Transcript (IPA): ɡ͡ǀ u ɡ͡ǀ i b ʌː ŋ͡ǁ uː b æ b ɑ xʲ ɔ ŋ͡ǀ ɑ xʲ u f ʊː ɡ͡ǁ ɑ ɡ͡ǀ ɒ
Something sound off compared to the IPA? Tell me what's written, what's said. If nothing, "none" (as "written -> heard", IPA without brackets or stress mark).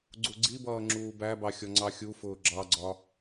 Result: none